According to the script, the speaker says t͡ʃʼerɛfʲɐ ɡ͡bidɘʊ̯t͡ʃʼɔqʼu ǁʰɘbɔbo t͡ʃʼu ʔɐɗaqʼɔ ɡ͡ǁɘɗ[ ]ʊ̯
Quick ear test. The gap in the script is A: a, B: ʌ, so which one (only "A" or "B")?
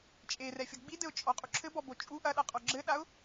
A